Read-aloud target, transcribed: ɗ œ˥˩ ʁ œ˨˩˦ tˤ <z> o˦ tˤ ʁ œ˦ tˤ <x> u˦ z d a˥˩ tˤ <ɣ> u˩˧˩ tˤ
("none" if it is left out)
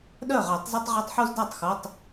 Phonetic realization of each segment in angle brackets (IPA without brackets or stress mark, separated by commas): z, ħ, x